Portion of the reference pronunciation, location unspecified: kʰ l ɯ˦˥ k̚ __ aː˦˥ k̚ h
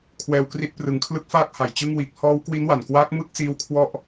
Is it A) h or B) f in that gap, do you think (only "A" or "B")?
B